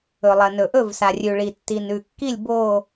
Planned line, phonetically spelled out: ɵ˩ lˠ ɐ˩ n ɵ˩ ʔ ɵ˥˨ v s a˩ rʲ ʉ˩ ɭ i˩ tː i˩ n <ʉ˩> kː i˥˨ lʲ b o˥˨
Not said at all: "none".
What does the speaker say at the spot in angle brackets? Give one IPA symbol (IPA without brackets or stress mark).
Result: ʉ˩